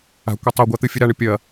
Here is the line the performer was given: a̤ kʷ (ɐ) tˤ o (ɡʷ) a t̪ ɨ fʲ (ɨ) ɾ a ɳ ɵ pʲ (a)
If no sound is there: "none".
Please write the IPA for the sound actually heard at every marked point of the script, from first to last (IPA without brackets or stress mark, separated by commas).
ɐ, ɡʷ, ɨ, ɐ